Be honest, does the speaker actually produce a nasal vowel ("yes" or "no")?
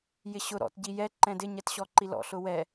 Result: yes